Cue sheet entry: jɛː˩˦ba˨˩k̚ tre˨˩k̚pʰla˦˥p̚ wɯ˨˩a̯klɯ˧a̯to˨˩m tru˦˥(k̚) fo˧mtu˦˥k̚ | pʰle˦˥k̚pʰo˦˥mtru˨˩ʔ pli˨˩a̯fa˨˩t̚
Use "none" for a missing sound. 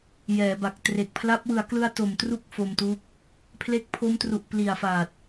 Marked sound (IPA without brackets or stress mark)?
k̚